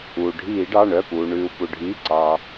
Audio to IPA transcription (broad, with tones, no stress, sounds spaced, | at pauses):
uː˩ ɖʱ iː˧˩˧ ɖ ɑ˩˧˩ ɳ œ˩˧˩ p uː˩ ɳ ʉː˩ u̯ p u˩ ɖʱ iː˩˧˩ ǀ ɑ˩